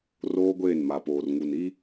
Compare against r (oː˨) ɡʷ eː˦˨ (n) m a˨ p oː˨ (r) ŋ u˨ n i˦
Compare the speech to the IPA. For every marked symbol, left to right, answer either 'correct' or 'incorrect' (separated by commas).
incorrect, correct, correct